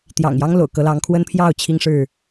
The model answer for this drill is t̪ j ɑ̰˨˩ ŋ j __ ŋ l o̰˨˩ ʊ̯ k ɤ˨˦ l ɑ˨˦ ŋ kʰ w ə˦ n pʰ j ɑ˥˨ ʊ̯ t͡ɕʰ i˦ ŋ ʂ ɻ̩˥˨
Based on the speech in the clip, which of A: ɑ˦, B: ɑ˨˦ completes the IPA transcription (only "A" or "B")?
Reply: A